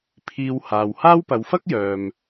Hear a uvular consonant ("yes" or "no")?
no